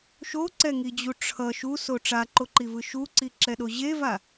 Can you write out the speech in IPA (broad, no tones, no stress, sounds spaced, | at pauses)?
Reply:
ʃ o ǀ ɛ ŋ i d͡ʑ u ʈ͡ʂʰ ʌ ʃ u s o ʈ͡ʂ a ǃ o ǃ i v ɯ ʃ u ǀ i ǁ ɛ ɗ o ʑ e v a